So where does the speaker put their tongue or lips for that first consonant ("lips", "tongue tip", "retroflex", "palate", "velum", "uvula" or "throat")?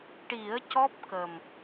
retroflex